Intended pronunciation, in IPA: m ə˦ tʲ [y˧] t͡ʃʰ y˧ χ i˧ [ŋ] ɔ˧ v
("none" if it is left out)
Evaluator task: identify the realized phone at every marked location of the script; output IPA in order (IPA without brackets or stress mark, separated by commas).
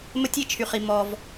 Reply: i˧, m